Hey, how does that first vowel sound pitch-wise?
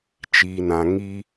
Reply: low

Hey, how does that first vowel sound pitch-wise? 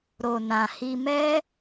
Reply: low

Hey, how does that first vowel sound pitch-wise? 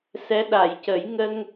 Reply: rising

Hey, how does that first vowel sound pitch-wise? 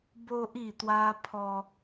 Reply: high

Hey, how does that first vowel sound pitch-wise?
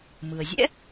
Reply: low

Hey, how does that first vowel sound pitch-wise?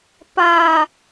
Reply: falling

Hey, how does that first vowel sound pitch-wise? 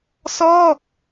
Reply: falling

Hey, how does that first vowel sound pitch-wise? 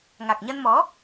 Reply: low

